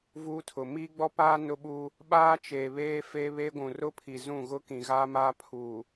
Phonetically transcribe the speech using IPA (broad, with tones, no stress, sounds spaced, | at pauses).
v uː˦ tʰ ʊ˨ m i˦ ɡ͡b ɔ˦ p aː˦ n ʊ˦ ɓ uː˦ | ɓ aː˦ t͡ʃ eː˨ β eː˦ f e˦ β eː˦ ɡʷ ũ˨ r ʊ˦ pʰ i˨ z ũ˦˨ ɣ ʊ˦ k ĩ˨ ɣ aː˦ m aː˦ pʰ uː˨